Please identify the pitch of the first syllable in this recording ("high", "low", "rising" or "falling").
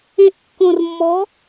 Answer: rising